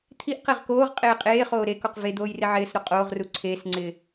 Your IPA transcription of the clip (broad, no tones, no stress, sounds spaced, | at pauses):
t̪ʰ i ʔ q e ʁ k oː ʁ qʼ eː qʼ eː χ oː ɾ e k ɔ q v e d̪ oː j r ɪ ʕ ɪː s ɾ o qʼ oː ʁ r u ǀʰ eː s ŋ͡ǀ ɪː